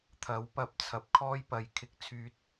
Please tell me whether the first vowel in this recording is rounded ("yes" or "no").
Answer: no